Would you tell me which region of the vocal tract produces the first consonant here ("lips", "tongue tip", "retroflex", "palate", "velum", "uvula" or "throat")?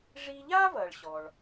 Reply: retroflex